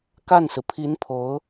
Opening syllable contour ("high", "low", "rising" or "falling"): falling